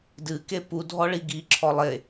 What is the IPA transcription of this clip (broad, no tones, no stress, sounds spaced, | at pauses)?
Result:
d ɨ k e p u dʱ ɔ ɭ i ɡ i ǁʰ ɔ lˠ e